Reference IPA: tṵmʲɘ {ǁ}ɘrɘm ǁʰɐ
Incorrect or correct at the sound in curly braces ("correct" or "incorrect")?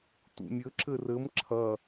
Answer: correct